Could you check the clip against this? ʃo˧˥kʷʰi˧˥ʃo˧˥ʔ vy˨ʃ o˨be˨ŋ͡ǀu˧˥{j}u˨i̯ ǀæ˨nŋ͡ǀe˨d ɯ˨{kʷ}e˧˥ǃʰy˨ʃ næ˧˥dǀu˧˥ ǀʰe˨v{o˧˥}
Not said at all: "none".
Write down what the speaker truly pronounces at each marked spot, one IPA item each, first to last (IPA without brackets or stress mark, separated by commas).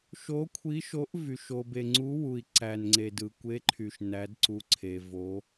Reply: w, kʷ, o˧˥